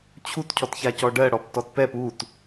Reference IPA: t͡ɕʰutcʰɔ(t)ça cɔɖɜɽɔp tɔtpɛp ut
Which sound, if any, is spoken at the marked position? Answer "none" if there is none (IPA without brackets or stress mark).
t